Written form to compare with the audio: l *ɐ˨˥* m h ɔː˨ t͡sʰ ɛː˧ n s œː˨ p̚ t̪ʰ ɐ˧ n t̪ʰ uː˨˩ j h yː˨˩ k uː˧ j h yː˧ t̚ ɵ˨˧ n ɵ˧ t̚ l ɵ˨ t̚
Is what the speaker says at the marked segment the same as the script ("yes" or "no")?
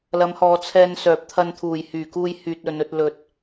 no